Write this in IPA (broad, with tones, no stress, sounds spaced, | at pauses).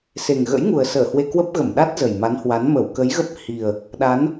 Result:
s e˨˩ ŋ ɣ ə̰˧˥ j ŋ u˨˩ ə̯ s əː˧˩ h w e˧ k w ə˦˥ p̚ ɣ ə˧˩ m ɗ a˦˥ t̚ z ə˨˩ j m a˨˦ n h w a˨˦ n m ə˧˩ w k ə˨˦ j ɣ ə˦˥ p̚ h i˨˩ ə̯ | ɗ a˨˦ n